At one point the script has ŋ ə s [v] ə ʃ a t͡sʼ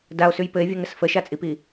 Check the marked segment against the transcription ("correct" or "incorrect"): incorrect